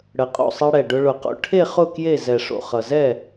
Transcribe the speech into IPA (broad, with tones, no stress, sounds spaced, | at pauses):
ɽ ə˨˩ qʼ o̰˥˨ sˤ e˧ ɽ ɛ˨˩ ɖ ʊ˧ ɭ ʊ˨˩ q o̰˧ ʈʰ e˥˨ χ ʊ˥˨ k j e˥˨ z ɛ˨˩ ʂ o̰˨˩ χ ʌ˨˩ z ɛ˥˨